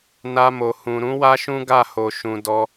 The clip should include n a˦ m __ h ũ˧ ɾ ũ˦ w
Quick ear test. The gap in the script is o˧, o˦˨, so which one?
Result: o˧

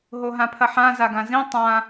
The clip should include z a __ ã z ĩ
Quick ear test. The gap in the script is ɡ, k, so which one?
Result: ɡ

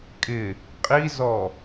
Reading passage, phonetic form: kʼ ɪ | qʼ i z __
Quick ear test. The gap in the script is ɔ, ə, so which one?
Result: ɔ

